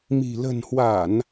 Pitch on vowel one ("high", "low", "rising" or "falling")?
low